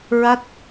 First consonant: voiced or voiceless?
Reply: voiced